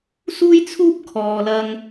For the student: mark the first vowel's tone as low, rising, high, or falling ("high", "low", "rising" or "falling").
high